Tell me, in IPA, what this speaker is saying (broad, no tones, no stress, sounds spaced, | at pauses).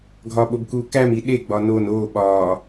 ɡʱ ɒ ɓ o b k u k æ m i ɗ e ɡ͡b ɒ n o n o ɓ ɒ